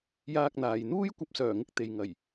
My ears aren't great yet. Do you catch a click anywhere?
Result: no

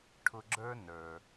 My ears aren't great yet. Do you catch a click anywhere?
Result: yes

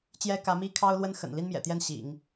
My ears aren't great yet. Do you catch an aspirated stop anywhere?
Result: yes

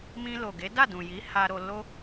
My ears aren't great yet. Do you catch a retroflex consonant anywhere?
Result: no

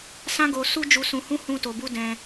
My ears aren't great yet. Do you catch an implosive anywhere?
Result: no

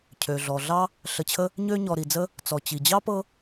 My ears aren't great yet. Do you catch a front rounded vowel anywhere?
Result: yes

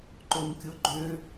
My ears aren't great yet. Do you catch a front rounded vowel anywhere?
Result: yes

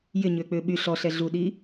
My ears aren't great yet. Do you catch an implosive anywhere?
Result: yes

